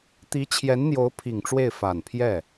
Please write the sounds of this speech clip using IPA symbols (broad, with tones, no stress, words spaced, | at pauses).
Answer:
t̪i˧˥t͡ɕʰjɛ˧˥nn̪jo˧˥ʊ̯ pʰi˨˩ŋʈ͡ʂwe˥˩ɪ̯ fa˨˩npʰjɛ˥˩